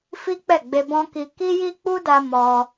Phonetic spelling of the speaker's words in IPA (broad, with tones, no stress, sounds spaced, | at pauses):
f i˦ k͡p ɛ˦˨ ɡ͡b e˧ b ɔ̃˦ k i˧ k i˦ j i˦ k͡p u˦ d a˧ m ɔ˧